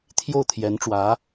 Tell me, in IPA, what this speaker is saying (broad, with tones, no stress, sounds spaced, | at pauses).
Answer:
t̪ʰ j o˥˩ ʊ̯ t̪ʰ j ɛ˧˥ n ʈ͡ʂ w ä˧˥